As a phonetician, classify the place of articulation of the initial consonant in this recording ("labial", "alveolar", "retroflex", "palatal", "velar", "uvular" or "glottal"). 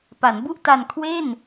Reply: labial